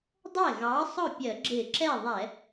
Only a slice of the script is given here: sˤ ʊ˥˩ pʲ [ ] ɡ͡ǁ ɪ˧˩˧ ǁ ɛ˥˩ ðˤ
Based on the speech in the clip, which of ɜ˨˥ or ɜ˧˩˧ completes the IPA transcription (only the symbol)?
ɜ˧˩˧